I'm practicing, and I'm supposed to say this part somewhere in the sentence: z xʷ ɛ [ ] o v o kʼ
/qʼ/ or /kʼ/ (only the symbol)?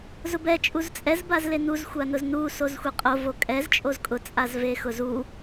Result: qʼ